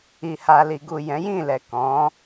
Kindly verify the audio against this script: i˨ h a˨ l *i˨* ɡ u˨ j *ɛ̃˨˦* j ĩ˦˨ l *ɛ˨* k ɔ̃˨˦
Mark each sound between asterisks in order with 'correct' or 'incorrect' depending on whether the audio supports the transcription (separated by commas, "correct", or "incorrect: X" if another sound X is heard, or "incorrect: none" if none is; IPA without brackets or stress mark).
correct, correct, correct